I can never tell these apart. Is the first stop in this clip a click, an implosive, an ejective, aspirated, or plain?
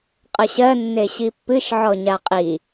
ejective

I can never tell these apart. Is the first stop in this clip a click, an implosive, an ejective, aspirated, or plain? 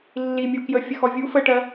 plain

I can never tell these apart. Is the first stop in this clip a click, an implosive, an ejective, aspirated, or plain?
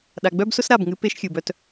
implosive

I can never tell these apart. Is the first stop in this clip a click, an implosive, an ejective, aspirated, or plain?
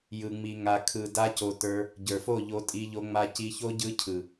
aspirated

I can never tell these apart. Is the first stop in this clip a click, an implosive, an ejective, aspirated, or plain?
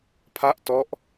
aspirated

